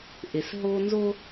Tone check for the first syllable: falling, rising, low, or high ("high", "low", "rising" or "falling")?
low